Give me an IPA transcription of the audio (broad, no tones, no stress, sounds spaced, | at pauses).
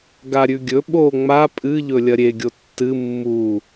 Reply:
ɡ a ɾʲ ʉ ɡʲ ɵ ɓ o ŋ͡m a pʼ ɨ ʎ ɵ lʲ ɐ ɾʲ e ɡʲ o tː ɨ mː u